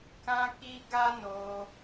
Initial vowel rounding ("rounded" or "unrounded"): unrounded